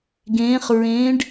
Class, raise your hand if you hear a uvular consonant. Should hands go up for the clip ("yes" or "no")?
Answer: yes